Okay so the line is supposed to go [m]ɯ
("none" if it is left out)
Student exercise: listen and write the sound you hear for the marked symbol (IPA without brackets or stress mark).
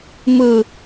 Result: m